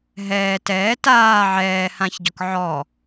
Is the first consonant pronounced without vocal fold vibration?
no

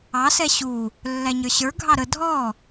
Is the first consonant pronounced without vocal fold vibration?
yes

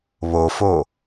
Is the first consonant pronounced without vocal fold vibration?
no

